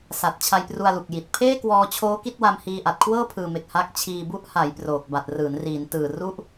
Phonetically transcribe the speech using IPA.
s a˨˩ t̚ t͡ɕʰ a˧ j p r u˧ a̯ l u˨˩ k̚ j i˨˩ t̚ pʰ eː˥˩ k w ɔː˧ t͡ɕʰ oː˦˥ k i˥˩ t̚ w a˧ m h iː˧ ʔ a˨˩ t̚ kʰ w ɤː˥˩ pʰ ɯː˨˩ m e˨˩ k̚ h a˦˥ k̚ t͡ɕʰ iː˧ b u˦˥ ʔ h a˩˦ j p r oː˨˩ k̚ b a˨˩ t̚ r ɯː˩˦ n r iː˩˦ n t ɯː˨˩ r u˦˥ ʔ

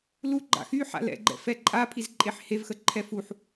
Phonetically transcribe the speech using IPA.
l u ɡ͡ǃ a̰ x y ħ a̰ l ɛ̰ ɡ͡ǃ ɛ̰ f ɛ ǃʼ a pʰ i z ǃʼ e ħ h e v x ə ǃʰ ɛ f u ħ

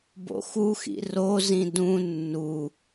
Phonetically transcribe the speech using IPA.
b o̰ x u x ḭ r o z ĩ d ũ nː u

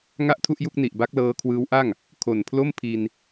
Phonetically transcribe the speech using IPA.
ŋ a˥˩ ʔ tʰ u˥˩ ʔ j u˥˩ k̚ n i˨˩ ʔ b a˦˥ k̚ l ɤː˧ kʰ w ɯː˦˥ w ʔ a˥˩ ŋ | kʰ o˨˩ n pʰ l o˥˩ m pʰ i˧ n

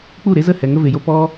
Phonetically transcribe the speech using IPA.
k͡p u˦˨ ɾ e˦ z ə˦˨ h ɛ˨ ŋ ə˧ v e˨ j o˧ p ɔ˦

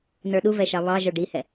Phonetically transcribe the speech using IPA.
n ə˞ ɗ u v ɛ ʃ ɑ β ɑ ʒ ə˞ ɖ i h ɛ

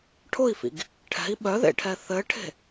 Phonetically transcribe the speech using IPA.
ʈʰ ʊ i̯ f ḭ ɡ | ʈʰ ɛ̤ i̯ ɓ œ ð ḛ ʈʰ ɛ θ ɘ ʈʰ e̤

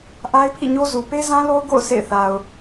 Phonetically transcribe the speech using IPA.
ʔ a˦ ɪ̯ pʰ ḭ˦˨ ɲ o˦ z u˨ p e˦ z ã˦ l o˦ ʊ̯ ɡ o̰˦˨ ʊ̯ s ḛ˦˨ ɪ̯ θ a˨ ʊ̯

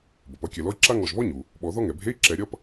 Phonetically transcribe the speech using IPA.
b ʌ˩ p ʌ˧˥˧ kʲ ɛ˨˩˦ l ɔ˥ i̯ ǁ a˥ ŋ ɔ˧˩ ʒ β ɔ˥ ɲ u˩ | ɓ ɔ˨˩˦ ð ɔ˥ ŋ ɛ˩ bʱ e˧˥˧ i̯ ǁ ɛ˨˩˦ ɾʲ ʌ˧˥˧ p

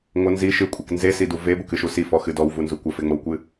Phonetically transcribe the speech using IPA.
ŋʷ ə n z i ʃ ɨ kʷʼ e k n z e s i d u v e b ə k ɨ ʃ u s i f ɔ x ɨ d ɔ w v u n z u kʷ ə f e ŋ͡m o w kʷ ɨ

